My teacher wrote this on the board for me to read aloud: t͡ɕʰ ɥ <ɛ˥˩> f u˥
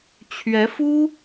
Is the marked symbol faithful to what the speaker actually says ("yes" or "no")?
no